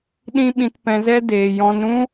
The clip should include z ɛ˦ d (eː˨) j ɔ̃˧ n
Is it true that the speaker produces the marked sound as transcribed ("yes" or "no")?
yes